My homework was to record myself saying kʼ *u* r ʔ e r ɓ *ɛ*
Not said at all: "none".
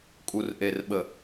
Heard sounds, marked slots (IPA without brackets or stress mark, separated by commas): u, ə